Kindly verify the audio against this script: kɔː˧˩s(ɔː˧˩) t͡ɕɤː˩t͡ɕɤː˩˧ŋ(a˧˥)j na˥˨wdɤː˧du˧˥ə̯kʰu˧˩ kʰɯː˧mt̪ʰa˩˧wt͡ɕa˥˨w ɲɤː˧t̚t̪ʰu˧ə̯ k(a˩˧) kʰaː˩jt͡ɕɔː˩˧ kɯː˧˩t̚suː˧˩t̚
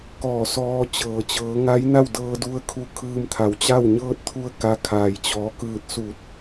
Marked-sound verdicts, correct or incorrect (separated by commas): incorrect, correct, incorrect